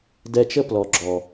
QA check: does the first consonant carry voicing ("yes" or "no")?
yes